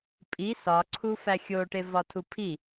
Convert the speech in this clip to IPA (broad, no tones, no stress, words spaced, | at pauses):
pʼi sɒǀʰu fæxʲoʈe vɒtʰupʰi